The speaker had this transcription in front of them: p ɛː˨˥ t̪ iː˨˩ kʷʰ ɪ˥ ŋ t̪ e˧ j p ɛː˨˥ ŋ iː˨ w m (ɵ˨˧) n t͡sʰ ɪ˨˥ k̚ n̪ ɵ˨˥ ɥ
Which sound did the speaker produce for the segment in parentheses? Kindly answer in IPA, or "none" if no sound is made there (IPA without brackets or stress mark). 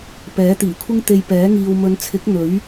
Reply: ɵ˨˧